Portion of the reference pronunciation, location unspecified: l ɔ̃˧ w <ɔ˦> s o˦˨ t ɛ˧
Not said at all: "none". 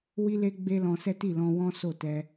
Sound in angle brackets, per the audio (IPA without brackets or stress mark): ɔ̃˦